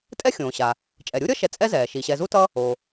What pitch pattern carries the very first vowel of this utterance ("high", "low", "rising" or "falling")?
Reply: high